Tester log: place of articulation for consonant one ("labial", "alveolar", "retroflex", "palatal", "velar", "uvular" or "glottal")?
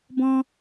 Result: labial